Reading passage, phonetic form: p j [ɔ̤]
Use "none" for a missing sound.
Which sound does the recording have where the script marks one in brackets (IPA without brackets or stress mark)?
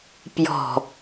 ɔ̤